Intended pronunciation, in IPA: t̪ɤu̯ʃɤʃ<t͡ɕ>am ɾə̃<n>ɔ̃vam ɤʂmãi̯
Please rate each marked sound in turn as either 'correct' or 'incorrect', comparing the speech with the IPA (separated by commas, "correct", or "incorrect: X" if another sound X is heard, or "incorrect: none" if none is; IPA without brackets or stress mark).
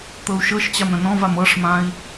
correct, correct